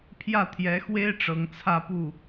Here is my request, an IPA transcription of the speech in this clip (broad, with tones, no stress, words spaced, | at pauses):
pʰjä˥˩ t̪ʰjɛ˧˥xwe˥ɪ̯ ʈ͡ʂɤ˧˥ŋt͡sʰä˥˧pu˥˩